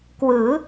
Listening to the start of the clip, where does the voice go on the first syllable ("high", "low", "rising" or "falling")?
rising